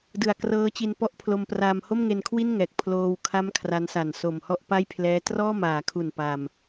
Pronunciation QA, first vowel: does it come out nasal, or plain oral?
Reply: oral